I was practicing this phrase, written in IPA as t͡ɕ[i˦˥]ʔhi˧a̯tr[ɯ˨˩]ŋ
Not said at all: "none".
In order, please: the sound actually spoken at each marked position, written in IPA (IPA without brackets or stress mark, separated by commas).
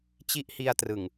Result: i˦˥, ɯ˨˩